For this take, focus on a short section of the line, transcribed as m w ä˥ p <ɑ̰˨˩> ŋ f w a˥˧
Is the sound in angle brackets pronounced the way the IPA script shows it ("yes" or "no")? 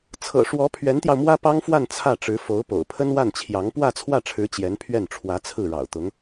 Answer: no